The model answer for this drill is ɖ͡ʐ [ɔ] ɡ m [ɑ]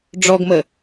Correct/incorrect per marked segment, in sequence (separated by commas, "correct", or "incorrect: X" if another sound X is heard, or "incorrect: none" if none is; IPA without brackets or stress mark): correct, incorrect: ə